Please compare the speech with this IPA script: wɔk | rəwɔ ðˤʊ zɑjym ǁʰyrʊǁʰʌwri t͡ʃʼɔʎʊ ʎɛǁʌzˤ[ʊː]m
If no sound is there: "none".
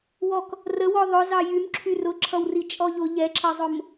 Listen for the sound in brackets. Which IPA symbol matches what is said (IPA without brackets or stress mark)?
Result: ʊ